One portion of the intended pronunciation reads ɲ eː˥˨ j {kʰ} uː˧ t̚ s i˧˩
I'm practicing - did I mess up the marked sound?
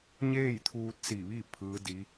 yes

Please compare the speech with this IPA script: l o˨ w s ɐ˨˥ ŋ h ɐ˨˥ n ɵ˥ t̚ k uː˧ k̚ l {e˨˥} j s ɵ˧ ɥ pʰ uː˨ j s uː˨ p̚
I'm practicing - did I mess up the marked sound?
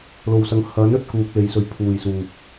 yes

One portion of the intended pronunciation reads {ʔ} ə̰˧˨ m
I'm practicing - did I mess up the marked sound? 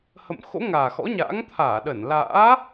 yes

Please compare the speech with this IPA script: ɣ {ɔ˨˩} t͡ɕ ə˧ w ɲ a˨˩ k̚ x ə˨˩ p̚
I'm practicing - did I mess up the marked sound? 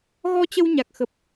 yes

